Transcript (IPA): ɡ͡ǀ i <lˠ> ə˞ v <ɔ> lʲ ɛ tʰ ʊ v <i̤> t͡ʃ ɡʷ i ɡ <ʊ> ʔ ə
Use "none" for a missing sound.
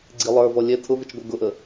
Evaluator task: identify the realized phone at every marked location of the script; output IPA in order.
lˠ, ɔ, i, ʊ

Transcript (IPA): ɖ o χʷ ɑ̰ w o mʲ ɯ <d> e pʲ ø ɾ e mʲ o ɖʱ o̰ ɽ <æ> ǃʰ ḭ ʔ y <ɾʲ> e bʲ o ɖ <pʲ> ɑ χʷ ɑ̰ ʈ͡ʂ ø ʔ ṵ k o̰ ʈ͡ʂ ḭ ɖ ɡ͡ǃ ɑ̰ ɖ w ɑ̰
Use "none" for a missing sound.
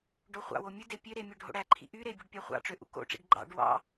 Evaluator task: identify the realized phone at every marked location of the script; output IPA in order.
d, æ, ɾ, pʲ

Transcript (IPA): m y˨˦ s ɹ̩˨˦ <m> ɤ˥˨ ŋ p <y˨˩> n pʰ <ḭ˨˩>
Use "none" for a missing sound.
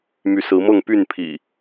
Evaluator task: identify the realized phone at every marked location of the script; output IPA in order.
m, y˥˨, ḭ˨˩

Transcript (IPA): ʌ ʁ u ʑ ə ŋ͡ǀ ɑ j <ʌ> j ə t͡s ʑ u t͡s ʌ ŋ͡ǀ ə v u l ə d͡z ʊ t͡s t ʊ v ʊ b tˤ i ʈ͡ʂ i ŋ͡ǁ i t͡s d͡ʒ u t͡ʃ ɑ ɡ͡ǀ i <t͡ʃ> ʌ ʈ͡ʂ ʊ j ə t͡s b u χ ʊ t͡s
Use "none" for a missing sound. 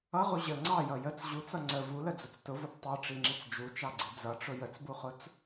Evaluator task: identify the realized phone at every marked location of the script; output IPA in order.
ʌ, d͡z

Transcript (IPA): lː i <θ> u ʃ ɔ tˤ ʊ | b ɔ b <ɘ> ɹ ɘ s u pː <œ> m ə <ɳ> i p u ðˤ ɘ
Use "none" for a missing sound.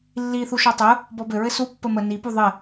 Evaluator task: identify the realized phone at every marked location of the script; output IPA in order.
θ, ɘ, ə, n

